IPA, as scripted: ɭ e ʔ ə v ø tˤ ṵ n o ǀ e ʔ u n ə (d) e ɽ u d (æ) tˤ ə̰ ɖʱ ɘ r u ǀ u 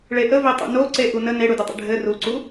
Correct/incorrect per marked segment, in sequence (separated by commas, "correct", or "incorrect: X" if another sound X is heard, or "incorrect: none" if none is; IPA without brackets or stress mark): incorrect: n, incorrect: ə